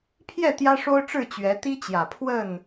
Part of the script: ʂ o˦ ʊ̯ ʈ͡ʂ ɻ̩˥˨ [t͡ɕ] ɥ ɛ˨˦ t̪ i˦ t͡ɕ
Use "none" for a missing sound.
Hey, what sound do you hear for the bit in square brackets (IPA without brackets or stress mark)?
t͡ɕ